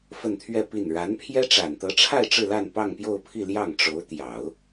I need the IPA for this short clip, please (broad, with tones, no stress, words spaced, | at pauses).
fə˥˧nt̪ʰɥɛ˥˧pi˥˩n ɻa˧˥npʰjɛ˥ ʈ͡ʂa˨˩nt̪ɤ˧˥ʈ͡ʂʰa˥˧ɪ̯ ʈ͡ʂɻ̩˥˧la˥˧npɑ˥˧ŋ pjo˥˧ʊ̯pʰi˥˧ ljɑ˥˩ŋ ʈ͡ʂo˧˥ʊ̯t̪jɑ˨˩˦ʊ̯